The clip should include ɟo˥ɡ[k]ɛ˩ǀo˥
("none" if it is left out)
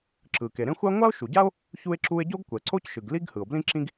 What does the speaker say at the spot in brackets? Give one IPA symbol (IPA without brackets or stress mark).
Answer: kʷ